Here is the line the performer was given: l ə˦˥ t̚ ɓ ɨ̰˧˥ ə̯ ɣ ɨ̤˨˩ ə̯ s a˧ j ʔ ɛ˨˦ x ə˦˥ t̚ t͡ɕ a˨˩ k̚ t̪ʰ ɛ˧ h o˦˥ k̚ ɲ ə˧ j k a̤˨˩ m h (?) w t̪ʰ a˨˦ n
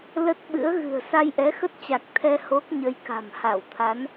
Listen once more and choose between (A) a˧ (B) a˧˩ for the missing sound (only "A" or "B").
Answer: B